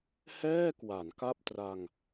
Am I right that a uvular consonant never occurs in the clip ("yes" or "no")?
yes